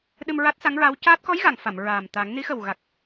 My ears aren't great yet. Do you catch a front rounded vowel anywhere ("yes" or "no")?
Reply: no